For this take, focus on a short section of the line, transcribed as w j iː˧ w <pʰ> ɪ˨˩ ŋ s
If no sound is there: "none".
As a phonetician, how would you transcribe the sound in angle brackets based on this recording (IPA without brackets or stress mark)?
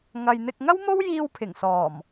pʰ